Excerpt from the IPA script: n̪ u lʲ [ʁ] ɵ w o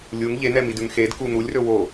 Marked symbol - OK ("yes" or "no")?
no